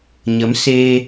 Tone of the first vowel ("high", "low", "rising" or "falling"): rising